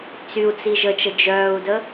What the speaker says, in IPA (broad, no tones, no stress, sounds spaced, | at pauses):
t͡s y u̯ t͡s i ʒ ə t͡ʃ ə d͡ʒ œː u̯ d ə